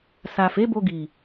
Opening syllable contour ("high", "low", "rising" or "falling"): low